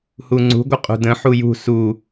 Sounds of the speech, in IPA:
h u ŋ͡ǀ ṳ ɡʷ ə qʼ ṳ d ə̃ ħ u j ṳ s u

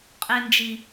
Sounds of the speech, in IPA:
qʼ e˨ n d͡ʒ i˨

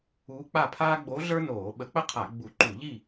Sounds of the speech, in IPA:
uː˧˥ k͡p a˥˨ pʰ aː˥ ɡ͡b o˧˥ ɮ ə˞˥ n oː˧˩˧ ɓ ə˧˩˧ k͡p ə˥ qʰ a˧˩˧ ɡ͡b u˧˩˧ ǃ u˧˩˧ ʎ i˥˨

